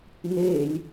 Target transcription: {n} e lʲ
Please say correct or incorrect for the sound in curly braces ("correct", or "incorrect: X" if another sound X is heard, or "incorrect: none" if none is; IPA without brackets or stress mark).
correct